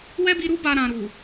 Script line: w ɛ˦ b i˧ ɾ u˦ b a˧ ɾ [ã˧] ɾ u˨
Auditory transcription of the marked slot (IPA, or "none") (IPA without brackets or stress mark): ã˨